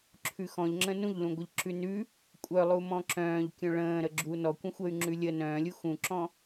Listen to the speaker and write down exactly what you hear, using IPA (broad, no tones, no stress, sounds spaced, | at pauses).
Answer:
ǁʰ ʉ x ɔ̃ ʎ ŋ͡ǁ ə̃ n ũ ʎ l ũ ɡʷ ə ʎ ǁ ʉ n ʉ | kʷʼ œ lˠ u m ɔ̃ ǁ œ̃ː ʎ kʲ œ̃ ɭ ə̃ː ɾ ə ɡ͡ǁ u n ɔ kʷ ə̃ xʷ ə y̯ ŋ͡ǁ ʉ lʲ ə n œ̃ː lʲ u x ũ ǁ ɔ̃